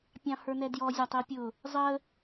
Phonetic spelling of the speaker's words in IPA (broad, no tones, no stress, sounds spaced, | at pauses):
pʲ ɑ̃ h ə˞ n ɛ d j ɔ zʲ æ tˤ i pʲ ʊ | zˤ ə